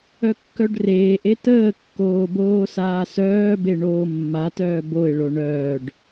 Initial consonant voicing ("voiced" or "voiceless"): voiceless